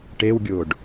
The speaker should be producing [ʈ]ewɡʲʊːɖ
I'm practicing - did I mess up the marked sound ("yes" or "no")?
no